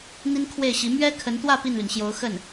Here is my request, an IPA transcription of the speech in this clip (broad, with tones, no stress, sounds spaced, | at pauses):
n̪ i˥ n kʰ w e˥˩ ɪ̯ ɕ i˧˥ m ɥ ɛ˥ kʰ ə˧˥ n t̪ w ä˥˧ p i˥˩ n l y˩ n ɕ j o˧˥ ʊ̯ x ə˥˩ n